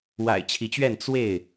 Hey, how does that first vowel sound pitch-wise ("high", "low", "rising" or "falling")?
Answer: low